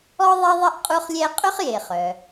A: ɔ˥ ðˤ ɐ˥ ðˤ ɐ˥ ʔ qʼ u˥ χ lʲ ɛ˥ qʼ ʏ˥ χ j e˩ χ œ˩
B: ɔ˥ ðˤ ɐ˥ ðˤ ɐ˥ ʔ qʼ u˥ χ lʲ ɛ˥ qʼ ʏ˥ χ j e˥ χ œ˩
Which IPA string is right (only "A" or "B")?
A